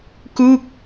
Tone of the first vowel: falling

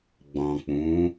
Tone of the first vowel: low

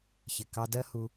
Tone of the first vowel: low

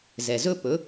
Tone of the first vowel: low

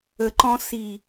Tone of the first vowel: low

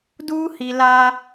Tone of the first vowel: high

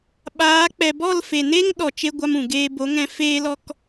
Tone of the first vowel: rising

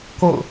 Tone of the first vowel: falling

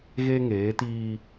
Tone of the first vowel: high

